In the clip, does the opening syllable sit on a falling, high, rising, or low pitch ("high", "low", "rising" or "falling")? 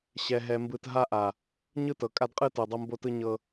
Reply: low